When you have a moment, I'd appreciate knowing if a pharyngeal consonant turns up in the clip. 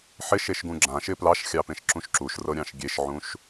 yes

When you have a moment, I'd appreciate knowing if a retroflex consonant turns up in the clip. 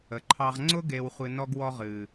no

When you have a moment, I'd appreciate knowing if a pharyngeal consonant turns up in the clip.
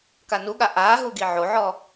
yes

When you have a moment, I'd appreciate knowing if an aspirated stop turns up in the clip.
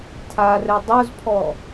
yes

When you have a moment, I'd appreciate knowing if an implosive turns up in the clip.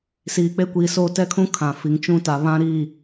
no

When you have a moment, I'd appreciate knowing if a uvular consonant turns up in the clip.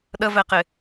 yes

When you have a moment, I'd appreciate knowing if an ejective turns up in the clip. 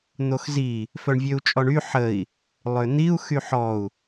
yes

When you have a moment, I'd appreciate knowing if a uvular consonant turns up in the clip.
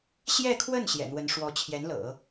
no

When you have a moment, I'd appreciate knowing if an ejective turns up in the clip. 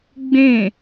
no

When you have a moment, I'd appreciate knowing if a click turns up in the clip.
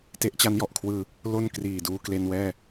no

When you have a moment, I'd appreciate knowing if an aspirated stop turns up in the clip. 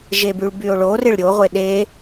no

